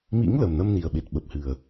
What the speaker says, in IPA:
mḭ˧˥ŋ lə˨˩mnə˧mni˨˩ə̯ɓe˨˩t̚ ɓə˨˩p̚hɨ˨˩ə̯

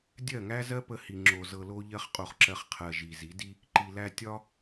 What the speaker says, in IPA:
dʲɜ˦˨ŋæ˦zɜ˦ pə˧hi˨ ŋ͡ǁo˨zɤ˨lo˧ʎɜ˧χ qʼo˧χǁɜ˧χ qʰɜ˨ ʒi˨zi˨˦di˦ | ǃi˨læ˧ tʲɒ˦

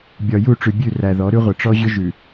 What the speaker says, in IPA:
bʲɒ˨ju˦˨ʈ͡ʂʉ˨bʲʉ˦˨ ræ˨ðɔ˨˦ɾʉ˦ʁʷə˨ ʈ͡ʂɔ˦ʑʏ˦ʒʉ˨

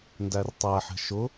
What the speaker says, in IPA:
ndærtˤæħɛ̤ ʃʊ

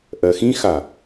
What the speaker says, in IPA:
ʔɜxĩxa

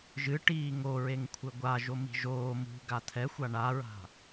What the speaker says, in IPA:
ʒɨʈiː ŋoɹeŋ kʷʰɘɡʷa ʒomi̤ʒoː mṳ ɡat̪ʰɛxʷa ɳaɹa̤

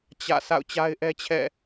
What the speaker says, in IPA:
t͡ɕä̰˦˨ sʰa̰˦˨ʊ̯t͡ɕa˦ɪ̯ʔɛ˦t͡ɕʰɛ̰˦˨

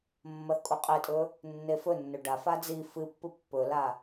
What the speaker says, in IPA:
mːɐθkʼuqʼetʼɵ | nːefɵnːɵ ɖafa d͡zi fɨpːɨ pːɵla

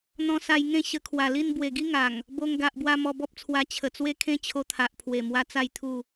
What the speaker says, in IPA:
n̪ɔ̃˧sa˧jŋẽ˥˧ ɕə˧kʰwa˨˩li˥˧n bwe˨˩ɡi˦ŋa˨˩ŋ | bo˧ŋ ɡa˨ʔbwa˧ mɔ˧bɔ˦p̚t͡sʰwa˧ t͡ɕʰə˨˩t͡swe˦kʰẽ˦ t͡ɕʰo˧t̪ʰa˨ʔpʰwe˨˩mwa˧ t͡sa˥˧jt̪ʰu˥˧

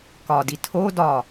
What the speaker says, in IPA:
kɒdi tʰo dɒ

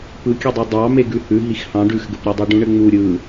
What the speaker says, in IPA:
pɯkʲɘdˤe dˤɑ meɡʉhʉ ɦixhɑ̃ɖ ʉxɡɘpɾʲadˤa ɖũɳɘŋ͡mu ɾʲɯ

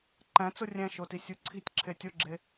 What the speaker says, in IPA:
ǃæ̃t͡so rʲæ̃ʃotisʲu ǀʰi̤tʲǁʰe tʲoɡ͡ǁe

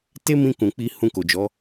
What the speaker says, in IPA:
te˦mĩ˧ kũ˨ k͡pi˧ hũ˧ko˨d͡ʒɔ˨˦

